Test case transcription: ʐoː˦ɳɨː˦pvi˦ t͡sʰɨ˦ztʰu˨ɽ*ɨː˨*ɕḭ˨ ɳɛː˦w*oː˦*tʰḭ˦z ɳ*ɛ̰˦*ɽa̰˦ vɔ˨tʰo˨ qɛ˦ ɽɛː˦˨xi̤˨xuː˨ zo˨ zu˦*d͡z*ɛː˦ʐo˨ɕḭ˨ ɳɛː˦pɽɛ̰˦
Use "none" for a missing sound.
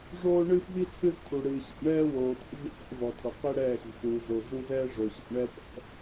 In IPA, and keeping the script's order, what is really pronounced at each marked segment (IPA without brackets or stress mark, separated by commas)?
ɨː˨, oː˨, ḛ˦, z